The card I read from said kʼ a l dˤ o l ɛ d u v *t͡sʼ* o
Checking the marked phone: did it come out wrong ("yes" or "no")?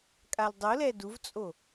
no